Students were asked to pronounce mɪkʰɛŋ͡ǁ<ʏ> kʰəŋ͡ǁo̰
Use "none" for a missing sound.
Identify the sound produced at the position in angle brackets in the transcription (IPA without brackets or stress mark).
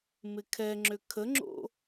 ʏ